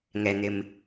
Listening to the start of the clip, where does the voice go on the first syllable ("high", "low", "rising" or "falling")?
low